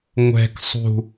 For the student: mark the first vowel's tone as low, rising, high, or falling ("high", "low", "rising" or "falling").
low